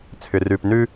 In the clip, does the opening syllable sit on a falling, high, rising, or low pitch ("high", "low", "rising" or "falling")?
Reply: low